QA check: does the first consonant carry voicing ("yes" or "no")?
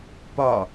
no